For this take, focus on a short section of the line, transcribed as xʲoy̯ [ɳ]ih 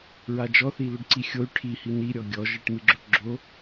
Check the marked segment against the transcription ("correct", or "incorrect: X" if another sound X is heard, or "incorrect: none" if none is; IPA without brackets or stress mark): incorrect: ʈʰ